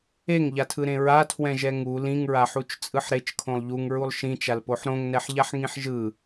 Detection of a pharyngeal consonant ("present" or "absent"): present